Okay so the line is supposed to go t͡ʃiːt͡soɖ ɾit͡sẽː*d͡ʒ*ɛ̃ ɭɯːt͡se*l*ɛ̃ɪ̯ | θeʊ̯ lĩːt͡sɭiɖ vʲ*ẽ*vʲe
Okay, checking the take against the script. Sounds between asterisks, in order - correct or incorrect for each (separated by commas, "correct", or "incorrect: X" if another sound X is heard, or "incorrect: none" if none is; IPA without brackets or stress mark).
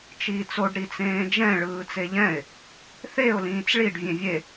correct, incorrect: ʎ, correct